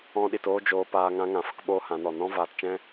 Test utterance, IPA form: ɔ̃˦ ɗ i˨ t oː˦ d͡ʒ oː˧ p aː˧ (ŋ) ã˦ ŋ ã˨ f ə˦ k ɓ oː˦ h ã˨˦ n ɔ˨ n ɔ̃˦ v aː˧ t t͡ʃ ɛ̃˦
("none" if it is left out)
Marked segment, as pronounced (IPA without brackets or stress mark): ŋ